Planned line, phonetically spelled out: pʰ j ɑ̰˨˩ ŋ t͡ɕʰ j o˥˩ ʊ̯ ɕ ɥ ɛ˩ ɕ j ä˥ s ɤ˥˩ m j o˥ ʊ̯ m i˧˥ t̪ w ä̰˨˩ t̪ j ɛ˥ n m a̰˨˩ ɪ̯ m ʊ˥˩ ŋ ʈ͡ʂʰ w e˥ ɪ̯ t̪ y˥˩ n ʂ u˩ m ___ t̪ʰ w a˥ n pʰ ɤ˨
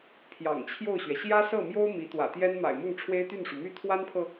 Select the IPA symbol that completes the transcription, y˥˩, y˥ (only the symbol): y˥